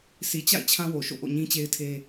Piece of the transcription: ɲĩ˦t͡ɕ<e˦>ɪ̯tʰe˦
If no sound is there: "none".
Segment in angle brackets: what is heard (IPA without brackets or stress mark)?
e˦